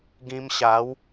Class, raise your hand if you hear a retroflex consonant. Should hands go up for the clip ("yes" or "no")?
no